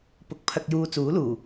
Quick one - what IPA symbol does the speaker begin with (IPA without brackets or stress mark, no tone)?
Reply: p